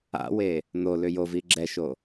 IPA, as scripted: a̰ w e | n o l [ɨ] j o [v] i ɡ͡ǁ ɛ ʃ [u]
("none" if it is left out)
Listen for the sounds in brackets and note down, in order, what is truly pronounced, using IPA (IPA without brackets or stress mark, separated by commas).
ʏ, v, o